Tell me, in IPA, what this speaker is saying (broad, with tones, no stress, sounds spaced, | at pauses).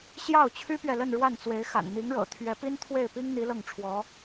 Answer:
ɕ j ɑ˥˩ ʊ̯ t͡ɕʰ y˥ p ɥ ɛ˨ l ə˥˧ n ɻ w a˥˩ n t͡s w e˧˥ ɪ̯ x a̰˨˩ n n̪ i˧˥ ŋ ɻ ɤ̰˨˩ t̪ʰ ɥ ɛ˧˥ p i˥ n t̪ʰ w e˥˩ ɪ̯ p i˥ ŋ n̪ i˧˥ l ɤ˥˩ ŋ ʈ͡ʂʰ w ɔ˧˥